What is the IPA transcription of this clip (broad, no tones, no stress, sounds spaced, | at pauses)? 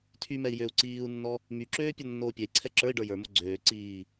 tʰ y m ɛ i̯ j ø u̯ ǀ iː u̯ nː ɔ | m y ǁ øː pʲ ɔ nː oː pʲ ɛ i̯ ǀʰ ɛ ǁ ə˞ i̯ ɖ ə˞ j ə˞ m o ɡ͡ǀ øː ǀ iː